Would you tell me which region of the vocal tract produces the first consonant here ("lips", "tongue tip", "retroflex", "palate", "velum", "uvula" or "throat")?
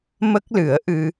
lips